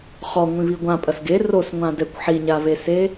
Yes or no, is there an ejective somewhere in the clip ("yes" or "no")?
yes